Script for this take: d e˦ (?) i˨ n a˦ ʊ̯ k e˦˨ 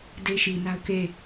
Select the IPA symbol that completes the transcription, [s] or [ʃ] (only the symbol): ʃ